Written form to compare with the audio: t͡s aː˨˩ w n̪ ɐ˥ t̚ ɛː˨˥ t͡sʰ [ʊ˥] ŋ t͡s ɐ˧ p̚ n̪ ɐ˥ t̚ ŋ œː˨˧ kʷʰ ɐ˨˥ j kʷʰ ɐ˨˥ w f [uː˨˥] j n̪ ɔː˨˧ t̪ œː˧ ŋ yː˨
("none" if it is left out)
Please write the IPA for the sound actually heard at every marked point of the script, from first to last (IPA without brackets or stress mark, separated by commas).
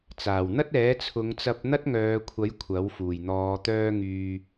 ʊ˨˧, uː˨˩